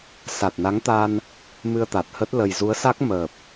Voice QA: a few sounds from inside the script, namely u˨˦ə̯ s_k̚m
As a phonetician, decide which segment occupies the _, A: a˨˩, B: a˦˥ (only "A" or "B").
B